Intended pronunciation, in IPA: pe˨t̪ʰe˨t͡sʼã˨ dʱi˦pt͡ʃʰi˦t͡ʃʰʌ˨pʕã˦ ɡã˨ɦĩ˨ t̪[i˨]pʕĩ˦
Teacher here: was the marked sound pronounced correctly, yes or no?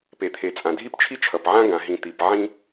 yes